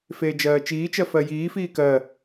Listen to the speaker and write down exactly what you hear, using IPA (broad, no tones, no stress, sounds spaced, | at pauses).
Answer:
f eː d͡ʒ ɜː t͡ʃ iː t͡ʃ ɜ f ɜ j iː f iː k ɜ